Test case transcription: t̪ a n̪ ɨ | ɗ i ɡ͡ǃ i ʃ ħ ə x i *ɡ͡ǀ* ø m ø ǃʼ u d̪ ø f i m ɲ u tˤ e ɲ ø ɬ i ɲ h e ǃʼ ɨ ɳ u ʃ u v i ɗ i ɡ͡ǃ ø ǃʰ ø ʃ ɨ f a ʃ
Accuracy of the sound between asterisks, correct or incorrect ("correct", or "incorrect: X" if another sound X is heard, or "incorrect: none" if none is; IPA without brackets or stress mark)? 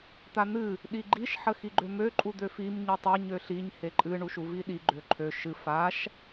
incorrect: ɡ͡ǃ